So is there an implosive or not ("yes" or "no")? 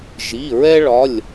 no